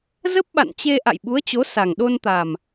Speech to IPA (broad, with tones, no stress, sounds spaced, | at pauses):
z ə˦˥ p̚ ɓ a̰˧˨ n t͡ɕ e˧ ʔ a̰˧˨ j ɓ u˨˦ ə̯ t͡ɕ o˨˦ s a˨˩ ŋ ɗ o˧ n t̪ a˨˩ m